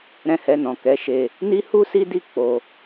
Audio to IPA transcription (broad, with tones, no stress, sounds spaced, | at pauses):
ɾ ɛ̃˦ h ɛ˧ n ɔ̃˨ k ɛ˨˦ ʃ e˧ | n i˦ h u˦ s i˦ d i˦˨ k͡p o˧